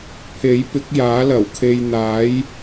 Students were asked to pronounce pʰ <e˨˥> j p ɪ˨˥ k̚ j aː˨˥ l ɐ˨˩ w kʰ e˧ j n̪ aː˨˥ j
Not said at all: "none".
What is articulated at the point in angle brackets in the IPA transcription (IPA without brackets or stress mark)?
e˨˥